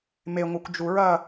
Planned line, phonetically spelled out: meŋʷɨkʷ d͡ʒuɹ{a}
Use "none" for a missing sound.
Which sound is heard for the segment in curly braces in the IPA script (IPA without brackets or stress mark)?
ɐ